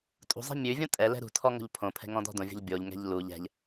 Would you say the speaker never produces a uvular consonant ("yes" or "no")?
yes